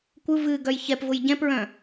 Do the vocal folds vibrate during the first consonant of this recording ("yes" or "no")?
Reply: no